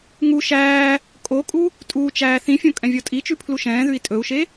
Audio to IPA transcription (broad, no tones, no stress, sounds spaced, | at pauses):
ŋ u ʃ æː | kʼ o kʼ u | tʼ uː t͡ʃ æː θ ĩ fʲ õ kʼ ɛ̃ vʲ ɔ tʼ i t͡ʃ ʉ pʰ l u ʃ ɛ̃ː ð ʉ i̯ tʼ ɵ u̯ ʃ e